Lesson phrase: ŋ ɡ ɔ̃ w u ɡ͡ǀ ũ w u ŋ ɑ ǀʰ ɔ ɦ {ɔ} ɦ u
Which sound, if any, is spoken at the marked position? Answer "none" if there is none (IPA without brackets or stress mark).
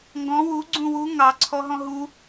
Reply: ɔ̃